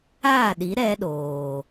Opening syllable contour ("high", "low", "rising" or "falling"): falling